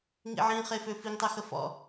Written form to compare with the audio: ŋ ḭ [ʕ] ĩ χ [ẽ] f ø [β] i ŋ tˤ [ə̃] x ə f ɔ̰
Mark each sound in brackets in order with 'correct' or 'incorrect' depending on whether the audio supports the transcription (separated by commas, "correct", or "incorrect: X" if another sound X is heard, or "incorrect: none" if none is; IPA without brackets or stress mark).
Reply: correct, incorrect: e, incorrect: f, incorrect: ə